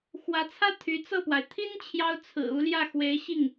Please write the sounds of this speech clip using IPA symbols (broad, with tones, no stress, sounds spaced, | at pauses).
x w ä˧˥ t͡sʰ ä˥ t̪ʰ y˧˥ t͡s ɤ˥˩ p w a˩ ɪ̯ t̪ʰ i˥ n t͡ɕʰ j ɑ˥ ʊ̯ t͡sʰ ɹ̩˨˩ u˧˥ l j ä˥˩ x w e˧˥ ɪ̯ ɕ i˥˩ ŋ